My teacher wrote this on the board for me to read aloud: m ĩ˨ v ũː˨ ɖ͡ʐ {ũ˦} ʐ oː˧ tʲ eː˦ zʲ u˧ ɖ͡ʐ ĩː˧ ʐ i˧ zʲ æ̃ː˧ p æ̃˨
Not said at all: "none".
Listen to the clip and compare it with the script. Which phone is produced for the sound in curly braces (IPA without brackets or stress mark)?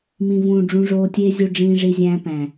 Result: ũ˦